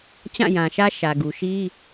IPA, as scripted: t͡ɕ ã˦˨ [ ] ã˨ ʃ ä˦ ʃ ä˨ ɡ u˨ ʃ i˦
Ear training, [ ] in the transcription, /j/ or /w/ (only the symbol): j